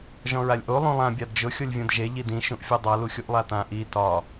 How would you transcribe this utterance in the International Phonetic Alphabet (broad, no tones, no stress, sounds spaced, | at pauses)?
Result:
ʒ ɔ̃ ɹ a lʲ ʔ o lˠ ũ lˠ ã bʲ a d d͡ʒ ʊ xʲ o lʲ vʲ õ d ʒ e ʎ i d ĩ ʃ ũ ʔ fʲ ɔ dˤ a l u xʲ u ʔ lˠ a t ã ʔ i t ɒ